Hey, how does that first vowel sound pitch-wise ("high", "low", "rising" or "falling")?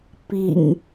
low